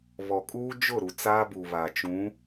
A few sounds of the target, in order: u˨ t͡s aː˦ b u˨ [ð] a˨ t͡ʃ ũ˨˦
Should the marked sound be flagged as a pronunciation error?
yes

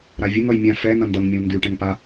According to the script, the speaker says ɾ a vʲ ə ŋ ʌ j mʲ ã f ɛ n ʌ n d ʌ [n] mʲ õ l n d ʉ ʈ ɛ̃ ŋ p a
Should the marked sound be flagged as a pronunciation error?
yes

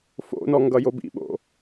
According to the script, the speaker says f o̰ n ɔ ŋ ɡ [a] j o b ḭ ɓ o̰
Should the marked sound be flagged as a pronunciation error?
yes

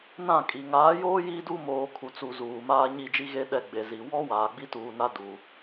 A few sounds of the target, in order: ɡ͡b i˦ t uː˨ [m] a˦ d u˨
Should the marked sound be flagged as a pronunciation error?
yes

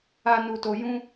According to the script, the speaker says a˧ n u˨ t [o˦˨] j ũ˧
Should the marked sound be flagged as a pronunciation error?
yes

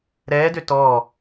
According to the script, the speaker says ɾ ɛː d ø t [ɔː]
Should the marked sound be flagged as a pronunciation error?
no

